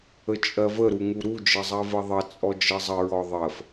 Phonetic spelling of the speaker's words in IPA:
ə t͡ʃʼ ɜ v ə ɾ u ŋ u ɾ u d͡ʒ ə zˤ ɜ v ɜ ðˤ ə t͡sʼ ɔ d͡ʒ ɜ zˤ ə ɹ ɔ ðˤ ɜ f

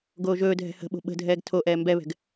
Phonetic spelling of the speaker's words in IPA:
ɡ oː ʒ ɵː dʱ ɛ̤ h ə̤ ɓ o̤ ɓ ə̤ dʱ ɛː ɡ tʰ o ʔ ɛː m b ɛ β ɛ̤ ɡ

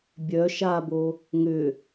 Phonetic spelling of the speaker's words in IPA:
bʲ œ ʃ a b o | ŋ ʏ

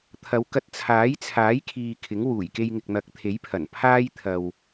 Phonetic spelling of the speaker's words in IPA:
t̪ʰ ɐ˨˧ w k ɐ˧ t̚ t͡sʰ aː˨˥ j t͡sʰ aː˨˥ j kʰ iː˨ kʰ ɪ˨˥ ŋ w uː˨˩ j k e˧ j ŋ ɪ˨ k̚ n̪ ɐ˨˥ k̚ t̪ʰ e˨˥ j pʰ ɐ˨˩ n pʰ aː˥ j t̪ʰ ɐ˨ w

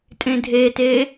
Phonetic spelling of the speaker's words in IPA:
tʼ ẽ dʱ e t e

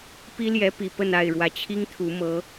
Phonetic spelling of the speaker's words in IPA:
p i˦ l j ɛ˨˦ p i˨˩ p ə˥˨ n a˥˨ ɪ̯ ɻ w ä˨˩ t͡ɕʰ i˦ ŋ t̪ʰ u˨˦ m ɤ˨˦

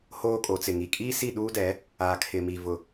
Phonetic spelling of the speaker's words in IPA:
h oː˦ kʼ o˨˦ t͡s ɪ˨ ŋ i˨ kʼ iː˦ s i˦˨ ɗ uː˦ d ɛ˨˦ | aː˨ kʰ ɪ˨ m i˨ v ʊ˨

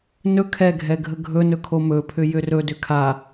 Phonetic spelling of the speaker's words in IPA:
n ɵ kʰ ɛ ɡʱ ɛ ɡʱ ə ɡʱ ɵ n ɵ kʰ o m ɵ pʰ ʏ j ʏ r ɵ d ʏ kʰ a

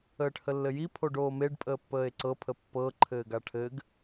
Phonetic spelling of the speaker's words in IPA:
əː ʈ h ə lː ɘ j i pʰ o ɖ oː m e ɖ pʼ əː pː əː e̯ ǀ ɤ pʰ ə pː ɤ ǃʰ ɘː ɡ a ʈʰ ɘ ɡ

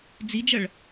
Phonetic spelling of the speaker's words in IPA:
d͡z i d͡ʒ ɐ ɭ

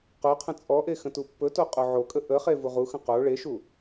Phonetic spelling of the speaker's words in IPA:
q o qʰ ə̃ t͡sʼ ɔ ʔ e x ə̃ t u pː ɵ t o qʼ o ʕ o kʼ ə ʔ ə χ e v u ʁ u x ə̃ q o ɭ e ʃ u

